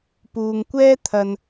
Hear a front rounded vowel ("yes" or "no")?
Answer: no